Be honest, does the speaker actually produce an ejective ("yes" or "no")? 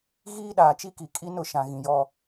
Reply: yes